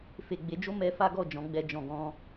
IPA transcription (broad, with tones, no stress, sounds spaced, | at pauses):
f e˨ ɡ͡b e˨˦ d͡ʒ o˦ m ɛ˧ f a˦ ɡ ɔ˦˨ d͡ʒ ɔ̃˨˦ ɡ͡b ɛ˧ d͡ʒ ɔ̃˨ ɡ ɔ̃˧